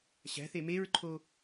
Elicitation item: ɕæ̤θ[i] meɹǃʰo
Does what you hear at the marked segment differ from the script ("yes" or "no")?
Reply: yes